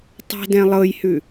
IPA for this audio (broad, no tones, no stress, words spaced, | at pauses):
tˤɛ̤dɛ̃ lˠɤjhʉ